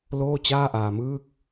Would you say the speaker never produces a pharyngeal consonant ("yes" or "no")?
yes